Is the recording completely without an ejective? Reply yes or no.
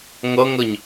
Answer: yes